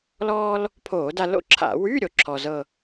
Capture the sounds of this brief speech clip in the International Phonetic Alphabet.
l ɔː˥ l | pʰ oː˧˩˧ d a˧ l o̰˥˧ ǁʰ a̰˧˩˧ w y˧˥˧ ɾʲ o˧ ǁʰ ɔ˧ z ɤ˥˧

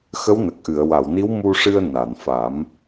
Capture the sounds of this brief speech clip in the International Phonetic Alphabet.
x ə˧˥ w n ə˨˩ k̚ ʔ ɨ˨˩˨ ə̯ w a˨˩˨ w n i˧˥ w m u˧ ʂ ɨ˧ ə̯ n a˨˩˨ n f a˨˩˦ m

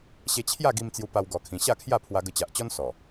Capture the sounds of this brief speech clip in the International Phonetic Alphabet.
ɕ e˧ t͡ɕʰ j a˥˧ ɡ i˧ m t͡s j u˧ p a˧ w ɡ ɔ˧ kʰ ĩ˧ ɕ a˥˧ kʰ j a˥˧ pʰ w a˧ ɡ ə˧ t͡ɕ a˨ ʔ t͡ɕ ɔ˦ n s ɔ˨˩

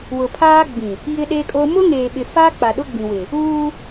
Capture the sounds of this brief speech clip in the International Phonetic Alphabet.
w ʊ˨ pʰ aː˦ ɡ͡b ĩ˨ | j ɪ˦ ɗ e˦ kʼ o˦ m ʊ˦ ŋ eː˨ ɓ ɪ˨ f aː˦ k͡p a˨ ɗ ʊ˦ ɡ͡b ĩ˨ w ɪ˨ | uː˦

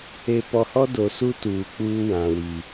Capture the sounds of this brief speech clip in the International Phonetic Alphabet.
e˨ p ɔ˨ h ɔ˦ d o˨ s u˦ t uː˨ k͡p uː˦ w ã˨ w i˨

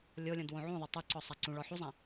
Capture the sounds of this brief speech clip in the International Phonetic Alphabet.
lʲ o lʲ õ d w õ ʕ ũ ðˤ a tˤ u ǀ ɔ sˤ a ǀ ũ ɭ ɔ ħ u zˤ ã

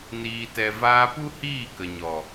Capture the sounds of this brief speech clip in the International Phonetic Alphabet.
n iː˨ t ɛ˨ v aː˧ p u˦ h iː˦˨ k ə˨ ɲ ɔ˨

